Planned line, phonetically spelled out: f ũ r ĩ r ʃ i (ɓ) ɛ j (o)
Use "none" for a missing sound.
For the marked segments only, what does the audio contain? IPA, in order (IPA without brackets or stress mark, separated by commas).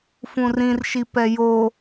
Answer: p, o